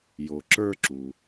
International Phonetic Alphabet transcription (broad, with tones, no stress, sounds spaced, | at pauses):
j o˩ ǁ ə˞˦ ǁ u˩